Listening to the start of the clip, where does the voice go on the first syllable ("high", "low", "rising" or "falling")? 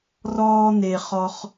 high